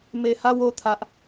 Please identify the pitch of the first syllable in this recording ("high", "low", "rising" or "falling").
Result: low